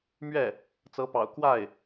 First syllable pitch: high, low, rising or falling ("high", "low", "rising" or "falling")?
falling